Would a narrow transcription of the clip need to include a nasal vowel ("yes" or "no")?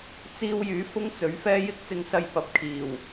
no